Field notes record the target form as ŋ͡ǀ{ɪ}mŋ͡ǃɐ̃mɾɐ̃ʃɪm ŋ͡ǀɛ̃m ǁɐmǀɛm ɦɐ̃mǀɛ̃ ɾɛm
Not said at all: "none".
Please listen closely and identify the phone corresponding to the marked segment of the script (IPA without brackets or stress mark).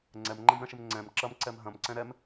ɛ